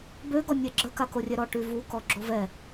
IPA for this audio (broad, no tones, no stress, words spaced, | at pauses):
bøɡɔ nʲeɡ͡ǁəka korʲɛɾɔ ʈyvukɔ ɡ͡ǁovɛ